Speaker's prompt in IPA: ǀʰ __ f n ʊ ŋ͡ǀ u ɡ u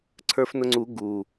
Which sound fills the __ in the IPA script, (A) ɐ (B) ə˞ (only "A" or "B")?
B